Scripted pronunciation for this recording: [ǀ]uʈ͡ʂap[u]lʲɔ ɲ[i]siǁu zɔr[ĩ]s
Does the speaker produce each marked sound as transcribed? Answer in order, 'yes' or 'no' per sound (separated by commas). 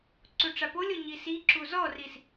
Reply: yes, no, yes, no